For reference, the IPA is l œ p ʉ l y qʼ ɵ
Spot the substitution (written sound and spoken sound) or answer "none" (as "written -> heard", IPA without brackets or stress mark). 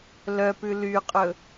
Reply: none